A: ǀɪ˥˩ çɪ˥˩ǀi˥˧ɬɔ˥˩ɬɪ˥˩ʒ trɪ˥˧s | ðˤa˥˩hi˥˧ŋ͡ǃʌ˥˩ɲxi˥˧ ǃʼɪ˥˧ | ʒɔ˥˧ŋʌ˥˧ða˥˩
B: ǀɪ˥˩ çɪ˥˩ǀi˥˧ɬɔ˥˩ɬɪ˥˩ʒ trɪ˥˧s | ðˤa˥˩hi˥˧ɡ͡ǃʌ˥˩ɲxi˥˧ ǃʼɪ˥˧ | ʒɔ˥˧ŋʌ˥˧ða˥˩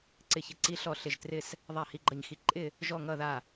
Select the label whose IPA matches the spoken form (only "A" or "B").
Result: B